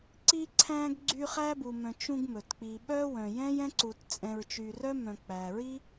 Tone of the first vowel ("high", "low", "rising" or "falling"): high